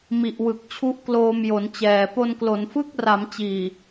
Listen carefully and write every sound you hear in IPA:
m i˨˩ ʔ w ɯ˨˩ k̚ t͡ɕʰ u˦˥ ʔ k l oː˧ m j o˩˦ n t͡ɕ ɛː˨˩ p o˧ n k l o˩˦ n f ɯ˥˩ k̚ r a˩˦ m t͡ɕ iː˨˩

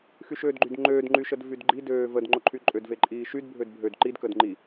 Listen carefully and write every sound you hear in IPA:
x y ʃ øː d ɡ͡ǃ y d ŋ͡ǃ øː d ŋ͡ǃ y ʃ ə d v y d ɡ͡ǃ i d øː v ə d ŋ͡ǃ o ǃʰ y ǃʼ ø d v e ǃʼ iː ʃ y d bʱ ø d bʱ ø d ǃ i d k ə d ŋ͡ǃ i

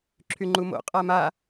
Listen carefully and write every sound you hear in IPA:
ǁʰ y ŋ͡ǃ u m o̰ qʼ a m a

